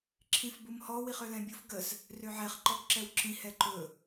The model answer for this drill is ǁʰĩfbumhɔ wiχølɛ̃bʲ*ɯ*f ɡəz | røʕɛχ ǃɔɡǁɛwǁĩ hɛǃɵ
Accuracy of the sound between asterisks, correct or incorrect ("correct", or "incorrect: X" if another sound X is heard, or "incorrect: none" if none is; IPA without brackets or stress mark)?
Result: incorrect: u